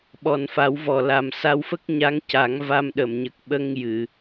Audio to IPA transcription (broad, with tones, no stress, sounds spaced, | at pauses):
ɓ ɔ˨˩ n f a˨˩˦ w v ɔ˨˩ l a˨˩ m s a˧ w f ə˦˥ k̚ ɲ a˧˥ ŋ c a˨˩˦ ŋ v a˧ m ɗ ə˨˩˨ m ɲ ə˨˩ k̚ ɓ ə˧ ŋ j ɨ˨˩˨